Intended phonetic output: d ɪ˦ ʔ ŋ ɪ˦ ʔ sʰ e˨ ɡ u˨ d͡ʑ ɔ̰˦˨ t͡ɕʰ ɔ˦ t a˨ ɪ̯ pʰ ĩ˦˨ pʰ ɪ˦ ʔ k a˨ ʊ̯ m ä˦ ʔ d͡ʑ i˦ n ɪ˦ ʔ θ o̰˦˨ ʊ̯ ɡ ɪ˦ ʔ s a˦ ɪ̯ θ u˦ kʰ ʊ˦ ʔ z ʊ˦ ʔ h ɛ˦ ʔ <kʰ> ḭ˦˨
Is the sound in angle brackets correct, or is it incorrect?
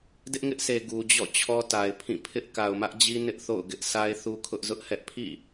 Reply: incorrect: pʰ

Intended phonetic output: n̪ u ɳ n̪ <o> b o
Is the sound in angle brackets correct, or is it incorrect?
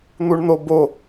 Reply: correct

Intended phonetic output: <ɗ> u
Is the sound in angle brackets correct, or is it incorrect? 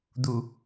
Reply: incorrect: d̪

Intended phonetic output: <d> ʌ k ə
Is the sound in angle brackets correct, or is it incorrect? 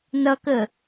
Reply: incorrect: n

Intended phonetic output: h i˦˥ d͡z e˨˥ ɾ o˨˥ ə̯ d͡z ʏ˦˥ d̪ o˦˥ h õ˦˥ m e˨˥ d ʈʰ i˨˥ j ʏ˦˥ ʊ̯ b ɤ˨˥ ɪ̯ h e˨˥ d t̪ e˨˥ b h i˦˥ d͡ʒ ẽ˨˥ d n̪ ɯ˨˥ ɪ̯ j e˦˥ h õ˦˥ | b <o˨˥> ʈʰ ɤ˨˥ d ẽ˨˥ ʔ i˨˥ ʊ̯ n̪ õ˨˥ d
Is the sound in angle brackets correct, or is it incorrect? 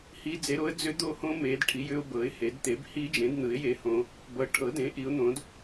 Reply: incorrect: ɤ˨˥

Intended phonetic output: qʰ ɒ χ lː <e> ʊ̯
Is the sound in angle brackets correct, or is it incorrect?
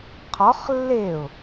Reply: correct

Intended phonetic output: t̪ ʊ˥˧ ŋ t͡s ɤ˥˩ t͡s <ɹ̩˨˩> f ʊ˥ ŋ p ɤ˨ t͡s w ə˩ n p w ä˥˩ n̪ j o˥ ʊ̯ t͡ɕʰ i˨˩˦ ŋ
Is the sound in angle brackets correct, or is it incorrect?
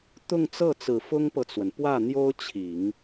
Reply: correct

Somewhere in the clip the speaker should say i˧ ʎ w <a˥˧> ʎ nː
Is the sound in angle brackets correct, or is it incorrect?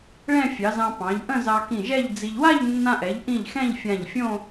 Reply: correct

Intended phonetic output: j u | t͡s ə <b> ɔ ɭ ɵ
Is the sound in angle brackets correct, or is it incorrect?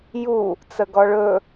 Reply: incorrect: ɡ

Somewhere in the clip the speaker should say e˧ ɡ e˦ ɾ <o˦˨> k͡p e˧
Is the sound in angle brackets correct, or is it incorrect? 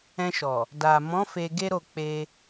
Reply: correct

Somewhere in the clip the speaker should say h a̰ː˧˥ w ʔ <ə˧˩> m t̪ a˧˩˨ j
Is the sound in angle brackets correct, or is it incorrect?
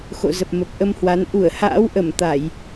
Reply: correct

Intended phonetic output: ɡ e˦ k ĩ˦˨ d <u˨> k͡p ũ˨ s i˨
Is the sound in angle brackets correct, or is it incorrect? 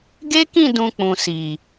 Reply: incorrect: ũ˨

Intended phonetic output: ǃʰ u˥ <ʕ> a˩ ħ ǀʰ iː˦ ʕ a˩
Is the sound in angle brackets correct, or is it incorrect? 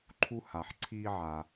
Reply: incorrect: h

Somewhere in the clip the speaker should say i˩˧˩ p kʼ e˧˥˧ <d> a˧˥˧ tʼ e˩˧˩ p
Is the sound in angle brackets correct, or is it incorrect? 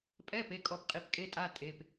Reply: incorrect: tʼ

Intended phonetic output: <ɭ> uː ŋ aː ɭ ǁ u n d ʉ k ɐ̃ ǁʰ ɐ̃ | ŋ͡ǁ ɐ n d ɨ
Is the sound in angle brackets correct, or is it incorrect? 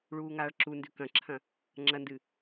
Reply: correct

